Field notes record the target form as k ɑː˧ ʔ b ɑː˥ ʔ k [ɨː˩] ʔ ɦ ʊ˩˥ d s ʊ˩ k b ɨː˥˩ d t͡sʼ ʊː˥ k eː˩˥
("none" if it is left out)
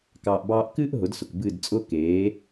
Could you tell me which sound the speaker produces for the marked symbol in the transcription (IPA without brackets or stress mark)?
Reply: ɨː˥